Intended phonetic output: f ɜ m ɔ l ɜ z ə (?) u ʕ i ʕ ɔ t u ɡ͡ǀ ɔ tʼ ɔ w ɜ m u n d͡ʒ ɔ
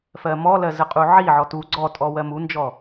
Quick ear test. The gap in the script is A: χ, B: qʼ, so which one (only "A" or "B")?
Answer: B